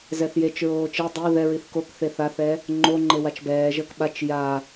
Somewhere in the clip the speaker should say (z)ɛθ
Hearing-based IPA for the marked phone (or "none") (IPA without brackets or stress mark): z